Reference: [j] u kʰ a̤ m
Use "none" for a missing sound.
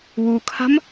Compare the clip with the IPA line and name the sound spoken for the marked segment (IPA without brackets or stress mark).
w